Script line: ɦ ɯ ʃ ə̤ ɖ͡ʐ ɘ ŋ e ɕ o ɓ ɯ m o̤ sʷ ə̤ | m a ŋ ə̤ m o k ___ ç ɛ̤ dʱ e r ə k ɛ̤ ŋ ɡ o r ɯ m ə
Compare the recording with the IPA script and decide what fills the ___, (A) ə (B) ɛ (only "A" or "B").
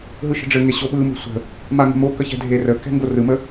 A